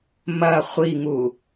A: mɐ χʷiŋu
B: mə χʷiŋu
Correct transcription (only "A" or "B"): A